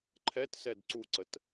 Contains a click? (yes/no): yes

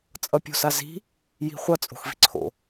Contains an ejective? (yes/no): yes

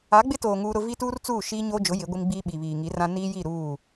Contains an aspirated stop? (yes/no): no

